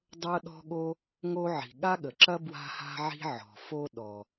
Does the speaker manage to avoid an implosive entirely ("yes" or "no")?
no